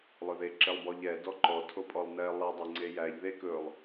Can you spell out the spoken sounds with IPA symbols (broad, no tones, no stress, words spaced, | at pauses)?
lˠɵðe ǁelˠbɔʎɛ dɔǃɔ tʰopʼɔlˠnɛ lˠe dˤeŋ͡ǀejæʎ ðek ɵlˠ